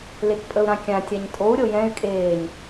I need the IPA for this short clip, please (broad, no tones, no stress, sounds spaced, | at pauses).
l e k pʼ ə u̯ ɾ ã kʲ ã tʲ a ɲ tʼ o u̯ ɾʲ o j ɛ̃ y̯ kʼ eː ɲ